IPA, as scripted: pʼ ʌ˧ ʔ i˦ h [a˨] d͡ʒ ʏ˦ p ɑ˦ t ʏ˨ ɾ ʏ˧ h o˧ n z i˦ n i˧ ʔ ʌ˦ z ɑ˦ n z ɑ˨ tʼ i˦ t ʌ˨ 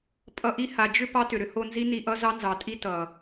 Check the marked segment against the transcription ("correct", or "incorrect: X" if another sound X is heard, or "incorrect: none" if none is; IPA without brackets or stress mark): correct